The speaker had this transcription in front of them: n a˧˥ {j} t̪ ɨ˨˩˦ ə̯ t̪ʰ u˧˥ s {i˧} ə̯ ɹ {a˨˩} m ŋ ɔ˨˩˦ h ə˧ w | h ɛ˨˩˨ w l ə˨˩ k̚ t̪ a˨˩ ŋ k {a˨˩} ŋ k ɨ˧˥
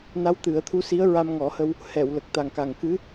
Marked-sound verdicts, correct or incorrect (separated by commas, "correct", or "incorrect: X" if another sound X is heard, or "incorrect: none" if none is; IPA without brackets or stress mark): incorrect: w, incorrect: i˧˥, incorrect: a˧, correct